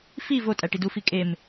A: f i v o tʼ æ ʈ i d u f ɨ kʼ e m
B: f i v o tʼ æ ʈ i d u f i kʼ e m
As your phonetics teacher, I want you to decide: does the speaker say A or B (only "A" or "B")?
B